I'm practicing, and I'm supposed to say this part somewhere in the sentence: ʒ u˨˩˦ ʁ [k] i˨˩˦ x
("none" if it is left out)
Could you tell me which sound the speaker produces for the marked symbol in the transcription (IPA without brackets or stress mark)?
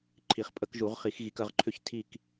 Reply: χ